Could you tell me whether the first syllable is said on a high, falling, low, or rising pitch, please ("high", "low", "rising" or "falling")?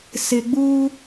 low